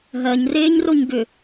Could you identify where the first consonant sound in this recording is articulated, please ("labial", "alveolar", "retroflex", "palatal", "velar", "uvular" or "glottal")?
glottal